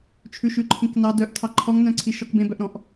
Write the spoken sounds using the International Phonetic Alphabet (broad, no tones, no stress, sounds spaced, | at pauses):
t͡ʃʰ ʉ ʃ ʉ ǃʰ ĩ k n ɑ d œ ʔ tʰ ɑ ǃʰ ɔ ŋ n œ̃ ǀʰ i ʃ ɔ k b ẽ b œ ʔ ɾ ɔ̃ ʔ